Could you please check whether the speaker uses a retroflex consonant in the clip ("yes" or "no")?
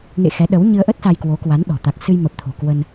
no